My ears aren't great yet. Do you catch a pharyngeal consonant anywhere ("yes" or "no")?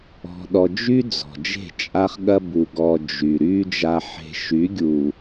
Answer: yes